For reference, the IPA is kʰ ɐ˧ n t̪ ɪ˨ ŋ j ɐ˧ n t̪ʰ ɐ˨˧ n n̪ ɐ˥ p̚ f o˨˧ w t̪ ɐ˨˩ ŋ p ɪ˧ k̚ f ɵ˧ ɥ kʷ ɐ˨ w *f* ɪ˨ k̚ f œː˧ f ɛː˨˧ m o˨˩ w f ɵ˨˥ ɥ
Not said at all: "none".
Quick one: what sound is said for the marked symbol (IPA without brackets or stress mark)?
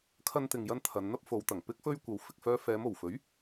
f